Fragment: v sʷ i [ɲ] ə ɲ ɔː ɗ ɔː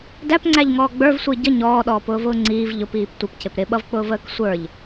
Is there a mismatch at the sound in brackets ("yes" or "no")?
yes